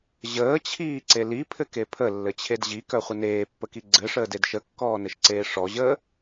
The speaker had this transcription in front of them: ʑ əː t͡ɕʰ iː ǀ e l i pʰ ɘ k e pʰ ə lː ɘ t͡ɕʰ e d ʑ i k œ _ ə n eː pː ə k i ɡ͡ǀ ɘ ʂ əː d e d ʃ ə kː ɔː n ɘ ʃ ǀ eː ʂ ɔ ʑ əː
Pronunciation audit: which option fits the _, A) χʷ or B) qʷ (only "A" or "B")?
A